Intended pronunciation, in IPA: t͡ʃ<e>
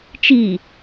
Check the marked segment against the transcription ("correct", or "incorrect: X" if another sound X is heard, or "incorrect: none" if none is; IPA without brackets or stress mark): incorrect: i